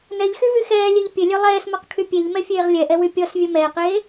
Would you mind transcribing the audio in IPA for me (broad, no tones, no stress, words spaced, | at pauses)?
nɛʎxyvy xɛːlʲeʎ pʲɘlʲœ lˠɛːsmɔqkʰy pʲeʎmɛfʲeːʁ lʲɛʔɛwy pʲɔsvʲœ mɛːqeː